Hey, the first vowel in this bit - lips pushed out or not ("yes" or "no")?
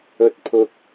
yes